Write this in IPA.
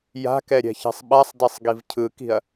j a̤ k ɛ ɾʲ ɛ̤ ç e̤ sˤ ɓ a sˤ d e sˤ ɡ i v cʰ ɯ k i̤ ɐ̯

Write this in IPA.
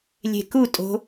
lʲ e̤ k u tʼ o̤

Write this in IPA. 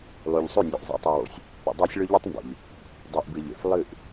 lˠ ʉ˨ ʎ sˤ ʉ˦˨ nʲ ʉ˨ ʔ zˤ ḭ˨ tˤ i˨ w o̰˨ sʲ | p ḛ˨ dˤ a˦ sʲ ɭ ɵ˦ ʎ ʉ˦ tˤ m b o̰˨ ʎ | dˤ i˨ ʔ b ɨ˨ ʎ ḛ˨ f lˠ ɨ˦˨ ʔ

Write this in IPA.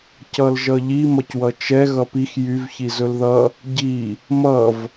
c ʌ l ʒ ʌ ʎ i m ʌ c w ʌ t͡ʃ ɛ ɣ ʌ p i x j y v ç i z ɵ l ð ʌ | ɟ i | m ʌ v

